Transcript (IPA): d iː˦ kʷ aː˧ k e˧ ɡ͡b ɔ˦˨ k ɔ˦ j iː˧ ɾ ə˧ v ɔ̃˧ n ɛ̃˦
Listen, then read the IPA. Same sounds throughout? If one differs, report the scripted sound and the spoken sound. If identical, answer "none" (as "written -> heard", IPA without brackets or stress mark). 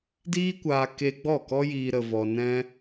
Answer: ɔ̃˧ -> ɔ˧